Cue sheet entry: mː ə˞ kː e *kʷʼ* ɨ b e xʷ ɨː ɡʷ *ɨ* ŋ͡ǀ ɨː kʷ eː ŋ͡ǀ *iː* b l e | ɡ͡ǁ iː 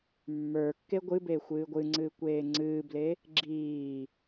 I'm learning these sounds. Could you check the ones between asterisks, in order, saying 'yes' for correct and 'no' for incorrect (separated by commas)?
no, yes, no